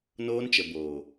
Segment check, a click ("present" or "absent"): absent